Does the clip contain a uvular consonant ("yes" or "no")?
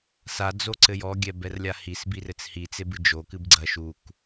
no